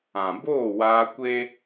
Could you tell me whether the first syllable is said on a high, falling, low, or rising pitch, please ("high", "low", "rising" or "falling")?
low